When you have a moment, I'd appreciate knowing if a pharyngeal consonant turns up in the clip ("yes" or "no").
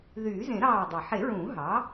yes